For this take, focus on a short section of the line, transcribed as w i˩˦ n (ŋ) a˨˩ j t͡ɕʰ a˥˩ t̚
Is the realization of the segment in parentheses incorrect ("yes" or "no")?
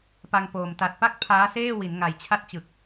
no